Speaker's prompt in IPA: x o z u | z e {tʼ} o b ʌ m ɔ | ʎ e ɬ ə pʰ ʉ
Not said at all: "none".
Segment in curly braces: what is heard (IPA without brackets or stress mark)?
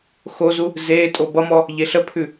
tʼ